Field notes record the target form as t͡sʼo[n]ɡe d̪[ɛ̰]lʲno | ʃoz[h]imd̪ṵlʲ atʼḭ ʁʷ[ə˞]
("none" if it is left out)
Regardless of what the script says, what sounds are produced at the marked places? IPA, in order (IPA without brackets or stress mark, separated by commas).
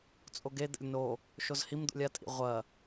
none, ɛ̰, h, ɐ